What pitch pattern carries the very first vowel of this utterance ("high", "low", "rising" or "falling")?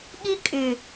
high